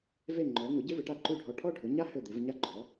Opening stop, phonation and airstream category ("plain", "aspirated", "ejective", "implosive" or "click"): click